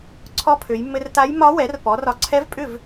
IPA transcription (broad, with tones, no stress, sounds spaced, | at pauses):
ǀʰ ɔ˧˥ pʰ ø˩˧ j mː ɘ˧ r t a˧˥ j m ɒ˧˥ w ɛ˩˥ r p ɔ˩˥ r ɒ˧ ǀʰ ɛ˧˥ v pʼ ʏ˥˩ v